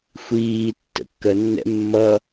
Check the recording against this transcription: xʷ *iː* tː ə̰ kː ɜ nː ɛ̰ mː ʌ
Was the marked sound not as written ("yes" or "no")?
no